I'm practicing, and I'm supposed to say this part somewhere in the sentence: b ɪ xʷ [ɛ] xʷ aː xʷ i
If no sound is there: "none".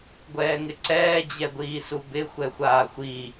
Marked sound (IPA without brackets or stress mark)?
ɛ